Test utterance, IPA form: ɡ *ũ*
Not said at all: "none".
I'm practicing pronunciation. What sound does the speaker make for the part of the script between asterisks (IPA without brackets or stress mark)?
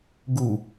u